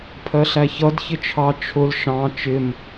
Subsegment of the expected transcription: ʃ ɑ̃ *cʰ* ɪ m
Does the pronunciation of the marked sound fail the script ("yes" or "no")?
yes